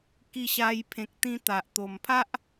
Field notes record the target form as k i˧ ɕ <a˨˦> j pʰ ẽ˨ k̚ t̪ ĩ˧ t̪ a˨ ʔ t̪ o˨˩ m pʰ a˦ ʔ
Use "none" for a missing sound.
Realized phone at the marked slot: a˧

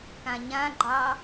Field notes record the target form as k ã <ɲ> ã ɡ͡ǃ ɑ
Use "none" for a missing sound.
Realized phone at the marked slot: ɲ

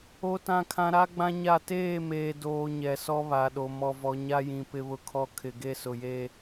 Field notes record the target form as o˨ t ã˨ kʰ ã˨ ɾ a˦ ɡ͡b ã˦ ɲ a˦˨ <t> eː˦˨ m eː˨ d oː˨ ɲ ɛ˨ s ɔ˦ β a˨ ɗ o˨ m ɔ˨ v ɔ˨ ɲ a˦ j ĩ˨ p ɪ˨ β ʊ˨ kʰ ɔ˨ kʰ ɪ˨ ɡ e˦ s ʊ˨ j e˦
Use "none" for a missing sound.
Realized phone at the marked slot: t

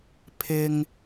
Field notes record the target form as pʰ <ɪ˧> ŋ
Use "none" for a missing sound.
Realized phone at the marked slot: ɪ˧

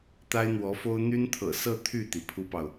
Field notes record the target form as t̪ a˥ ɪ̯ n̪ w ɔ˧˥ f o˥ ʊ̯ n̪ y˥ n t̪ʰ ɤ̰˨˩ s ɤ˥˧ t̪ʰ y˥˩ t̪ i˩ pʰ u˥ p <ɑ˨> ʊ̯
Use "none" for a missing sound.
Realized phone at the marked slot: ɑ˨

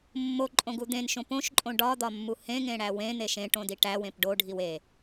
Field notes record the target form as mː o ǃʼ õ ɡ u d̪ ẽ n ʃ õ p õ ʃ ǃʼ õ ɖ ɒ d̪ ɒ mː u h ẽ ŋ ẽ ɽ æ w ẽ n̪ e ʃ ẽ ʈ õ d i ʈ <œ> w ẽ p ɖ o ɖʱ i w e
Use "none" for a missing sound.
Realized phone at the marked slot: æ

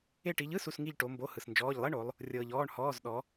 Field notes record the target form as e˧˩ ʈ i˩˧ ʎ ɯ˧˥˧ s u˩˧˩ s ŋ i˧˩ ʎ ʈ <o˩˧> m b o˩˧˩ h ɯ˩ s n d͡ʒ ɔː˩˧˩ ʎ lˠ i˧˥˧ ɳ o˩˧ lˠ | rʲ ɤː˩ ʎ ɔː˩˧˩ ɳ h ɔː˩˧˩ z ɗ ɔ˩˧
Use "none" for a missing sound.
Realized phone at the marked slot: o˩˧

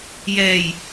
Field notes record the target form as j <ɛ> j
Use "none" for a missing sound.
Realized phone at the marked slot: ɛ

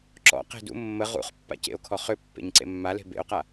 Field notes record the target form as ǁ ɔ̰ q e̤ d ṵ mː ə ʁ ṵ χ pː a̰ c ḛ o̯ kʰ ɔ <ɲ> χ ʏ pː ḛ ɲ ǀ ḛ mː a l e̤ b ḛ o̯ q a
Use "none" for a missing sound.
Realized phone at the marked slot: none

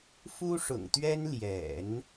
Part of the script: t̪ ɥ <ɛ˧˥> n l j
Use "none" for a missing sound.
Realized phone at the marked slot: ɛ˥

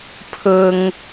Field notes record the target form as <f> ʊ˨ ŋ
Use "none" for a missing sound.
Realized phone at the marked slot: pʰ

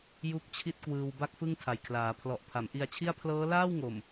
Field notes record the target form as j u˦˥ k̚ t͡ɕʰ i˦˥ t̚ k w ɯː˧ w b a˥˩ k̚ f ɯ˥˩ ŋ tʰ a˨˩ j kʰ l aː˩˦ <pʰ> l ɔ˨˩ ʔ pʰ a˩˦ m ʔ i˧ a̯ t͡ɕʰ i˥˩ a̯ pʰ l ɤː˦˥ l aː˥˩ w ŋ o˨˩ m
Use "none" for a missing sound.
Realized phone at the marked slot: pʰ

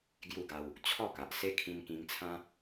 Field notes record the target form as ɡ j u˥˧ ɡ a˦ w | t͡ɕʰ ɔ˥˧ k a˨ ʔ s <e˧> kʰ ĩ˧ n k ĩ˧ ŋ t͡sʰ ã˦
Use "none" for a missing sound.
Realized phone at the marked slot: e˦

